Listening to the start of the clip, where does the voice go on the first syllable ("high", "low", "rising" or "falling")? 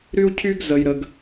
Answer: high